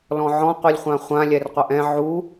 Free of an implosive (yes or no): yes